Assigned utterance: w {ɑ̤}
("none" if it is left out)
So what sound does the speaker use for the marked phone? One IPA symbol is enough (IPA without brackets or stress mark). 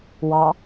ɑ